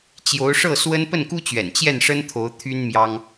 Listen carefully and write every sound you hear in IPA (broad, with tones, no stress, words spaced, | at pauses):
t͡ɕjo˧˥ʊ̯ʂɤ˥˩swə˥n pə˥˩nku˥t͡ɕɥɛ̰˨˩n t͡ɕjɛ˥˩nʂə˥nt̪ʰo˧˥ʊ̯ t̪ʰy˥nmjɑ˥ŋ